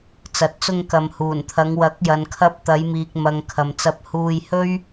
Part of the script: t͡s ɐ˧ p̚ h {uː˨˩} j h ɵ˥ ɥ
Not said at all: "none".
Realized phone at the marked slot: uː˧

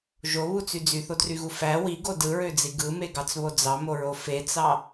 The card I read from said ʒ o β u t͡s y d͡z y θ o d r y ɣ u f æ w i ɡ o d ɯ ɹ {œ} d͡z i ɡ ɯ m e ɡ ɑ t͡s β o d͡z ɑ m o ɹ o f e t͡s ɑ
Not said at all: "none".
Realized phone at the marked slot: ø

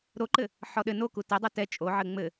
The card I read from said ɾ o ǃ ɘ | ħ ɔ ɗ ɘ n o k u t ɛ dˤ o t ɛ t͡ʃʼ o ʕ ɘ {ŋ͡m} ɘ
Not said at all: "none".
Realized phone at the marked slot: ŋ͡m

